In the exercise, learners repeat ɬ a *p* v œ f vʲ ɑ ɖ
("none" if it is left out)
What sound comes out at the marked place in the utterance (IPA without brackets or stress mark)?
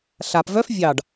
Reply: p